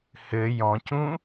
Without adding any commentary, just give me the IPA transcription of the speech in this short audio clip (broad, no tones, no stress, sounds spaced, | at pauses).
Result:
h ɘ j ɔ̃ c ũ